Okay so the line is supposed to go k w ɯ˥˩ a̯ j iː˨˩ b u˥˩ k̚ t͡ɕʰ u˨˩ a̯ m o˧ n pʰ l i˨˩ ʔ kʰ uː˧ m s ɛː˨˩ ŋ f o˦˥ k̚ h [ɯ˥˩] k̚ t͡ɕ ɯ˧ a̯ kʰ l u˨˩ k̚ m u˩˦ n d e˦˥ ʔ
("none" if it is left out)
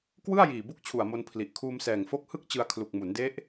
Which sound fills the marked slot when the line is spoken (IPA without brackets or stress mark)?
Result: ɯ˥˩